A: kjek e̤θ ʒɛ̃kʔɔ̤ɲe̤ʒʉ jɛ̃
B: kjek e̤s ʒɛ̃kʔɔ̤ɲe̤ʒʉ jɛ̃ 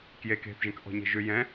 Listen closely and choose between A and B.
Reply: A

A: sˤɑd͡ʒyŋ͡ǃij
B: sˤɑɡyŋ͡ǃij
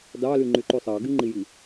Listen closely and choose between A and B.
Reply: B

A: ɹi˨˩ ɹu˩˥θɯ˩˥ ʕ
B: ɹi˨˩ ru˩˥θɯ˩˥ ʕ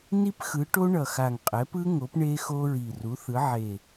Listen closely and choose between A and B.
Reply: B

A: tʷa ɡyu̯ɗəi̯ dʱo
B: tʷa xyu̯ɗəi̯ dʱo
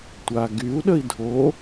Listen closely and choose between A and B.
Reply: A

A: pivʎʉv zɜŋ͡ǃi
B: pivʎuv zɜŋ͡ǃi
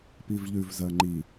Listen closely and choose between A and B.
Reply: A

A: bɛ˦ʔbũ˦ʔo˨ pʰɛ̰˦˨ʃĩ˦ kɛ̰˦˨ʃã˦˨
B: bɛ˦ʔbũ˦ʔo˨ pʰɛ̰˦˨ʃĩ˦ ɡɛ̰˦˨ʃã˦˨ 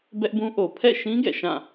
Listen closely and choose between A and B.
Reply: B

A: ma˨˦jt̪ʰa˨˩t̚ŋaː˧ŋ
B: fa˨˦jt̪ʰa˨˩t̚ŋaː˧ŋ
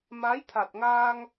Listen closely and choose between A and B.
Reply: A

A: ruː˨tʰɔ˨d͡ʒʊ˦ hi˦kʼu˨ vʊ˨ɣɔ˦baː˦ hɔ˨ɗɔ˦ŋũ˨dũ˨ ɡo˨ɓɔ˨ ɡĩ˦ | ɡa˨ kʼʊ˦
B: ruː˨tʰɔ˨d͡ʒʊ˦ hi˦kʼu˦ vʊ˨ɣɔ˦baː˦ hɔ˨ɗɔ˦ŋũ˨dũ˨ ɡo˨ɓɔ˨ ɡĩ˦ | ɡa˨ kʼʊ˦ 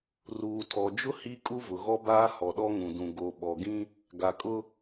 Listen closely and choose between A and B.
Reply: B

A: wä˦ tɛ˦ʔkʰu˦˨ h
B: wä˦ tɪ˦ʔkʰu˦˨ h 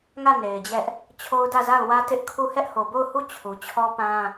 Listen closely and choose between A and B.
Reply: B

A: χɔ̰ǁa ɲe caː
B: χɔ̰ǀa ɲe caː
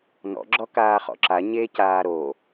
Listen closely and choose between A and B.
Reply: A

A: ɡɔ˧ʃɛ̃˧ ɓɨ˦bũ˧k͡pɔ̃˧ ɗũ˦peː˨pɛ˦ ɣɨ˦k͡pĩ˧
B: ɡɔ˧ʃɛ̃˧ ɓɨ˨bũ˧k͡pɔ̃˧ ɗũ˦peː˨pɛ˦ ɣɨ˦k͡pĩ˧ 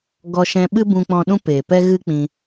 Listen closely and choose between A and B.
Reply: A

